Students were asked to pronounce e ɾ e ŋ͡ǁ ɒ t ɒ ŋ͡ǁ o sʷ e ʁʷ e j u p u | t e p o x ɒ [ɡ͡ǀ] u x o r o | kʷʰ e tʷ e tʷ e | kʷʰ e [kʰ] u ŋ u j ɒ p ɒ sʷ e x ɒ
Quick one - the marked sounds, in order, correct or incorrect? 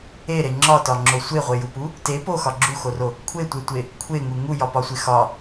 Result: incorrect: ɡ͡ǁ, incorrect: ŋ

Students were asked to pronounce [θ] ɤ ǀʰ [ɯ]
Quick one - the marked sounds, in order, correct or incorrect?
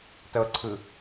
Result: incorrect: t, correct

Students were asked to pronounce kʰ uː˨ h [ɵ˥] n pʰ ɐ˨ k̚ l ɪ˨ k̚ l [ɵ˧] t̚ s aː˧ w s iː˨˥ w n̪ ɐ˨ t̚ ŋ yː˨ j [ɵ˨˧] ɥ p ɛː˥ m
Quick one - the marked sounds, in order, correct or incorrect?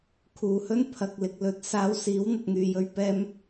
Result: correct, incorrect: ɵ˥, incorrect: ɵ˧

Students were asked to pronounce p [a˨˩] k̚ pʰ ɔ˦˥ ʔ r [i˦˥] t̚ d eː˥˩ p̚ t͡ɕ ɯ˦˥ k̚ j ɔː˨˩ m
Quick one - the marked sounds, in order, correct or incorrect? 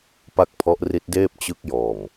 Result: incorrect: a˥˩, correct

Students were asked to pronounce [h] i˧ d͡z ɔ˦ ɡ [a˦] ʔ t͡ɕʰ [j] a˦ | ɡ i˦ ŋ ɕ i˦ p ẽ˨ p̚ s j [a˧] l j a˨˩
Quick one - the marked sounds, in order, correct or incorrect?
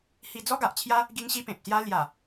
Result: correct, incorrect: a˨, correct, incorrect: a˦

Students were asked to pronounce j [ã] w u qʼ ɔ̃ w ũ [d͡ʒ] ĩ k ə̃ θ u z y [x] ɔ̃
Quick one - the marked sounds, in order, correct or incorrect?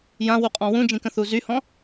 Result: correct, correct, incorrect: h

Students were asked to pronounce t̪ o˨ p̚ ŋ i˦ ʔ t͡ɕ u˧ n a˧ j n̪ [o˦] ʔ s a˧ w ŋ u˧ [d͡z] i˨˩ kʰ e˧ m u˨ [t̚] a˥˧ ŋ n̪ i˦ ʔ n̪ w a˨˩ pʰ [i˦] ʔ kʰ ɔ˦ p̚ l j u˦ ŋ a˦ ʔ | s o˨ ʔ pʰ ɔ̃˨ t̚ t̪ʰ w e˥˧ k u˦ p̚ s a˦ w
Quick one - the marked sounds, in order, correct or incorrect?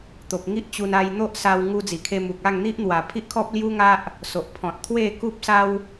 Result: correct, correct, incorrect: k̚, correct

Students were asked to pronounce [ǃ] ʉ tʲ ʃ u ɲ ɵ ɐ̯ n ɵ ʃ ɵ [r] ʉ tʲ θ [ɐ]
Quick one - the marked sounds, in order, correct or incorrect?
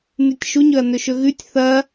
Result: incorrect: n, incorrect: ɣ, correct

